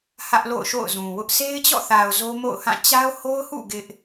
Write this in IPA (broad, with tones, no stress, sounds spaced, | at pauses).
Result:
h ä˦ ʔ l o̰˦˨ ʊ̯ ʃ o̰˦˨ ʊ̯ z ũ˨ w ʊ˦ ʔ s e˦ ɪ̯ t͡ɕ ɔ̰˦˨ θ a˨ ʊ̯ z o˦ m o̰˦˨ ʊ̯ h ã˦˨ t͡ɕ a˦ ʊ̯ h o˦ ʊ̯ h ṵ˦˨ ɡ ɪ˦ ʔ